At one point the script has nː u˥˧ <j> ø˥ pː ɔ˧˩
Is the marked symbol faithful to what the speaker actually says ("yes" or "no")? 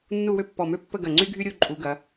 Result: no